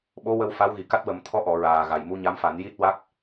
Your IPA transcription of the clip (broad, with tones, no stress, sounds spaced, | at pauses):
ɓ o˧˥ w ə˧ w f a˧˥ w ɣ i˨˩ k a˦˥ t̚ w ə˨˩˦ m t̪ʰ ɔ˧˥ ʔ ɔ˨˩˨ ɹ aː˨˩ ɣ a˨˩ j m u˧˥ ɲ a˧˥ m f a˨˩˦ n j i˦˥ t̚ w a˦˥ k̚